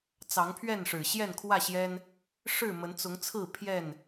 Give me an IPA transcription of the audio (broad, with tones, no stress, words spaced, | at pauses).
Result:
t͡sɑ˨˦ŋpʰɥɛ˥˨n ʂɻ̩˨˩ɕjɛ˥˨nkʰwä˥˨ɕjɛ˦n | ʂɻ̩˥˨mə˨˦nt͡sʊ˨˦ŋt͡sʰɹ̩˥˨ pʰjɛ˥˨n